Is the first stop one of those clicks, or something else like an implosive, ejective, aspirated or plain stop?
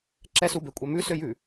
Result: click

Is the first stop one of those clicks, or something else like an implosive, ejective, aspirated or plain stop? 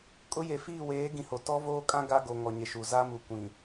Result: ejective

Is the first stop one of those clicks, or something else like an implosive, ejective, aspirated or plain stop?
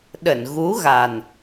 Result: implosive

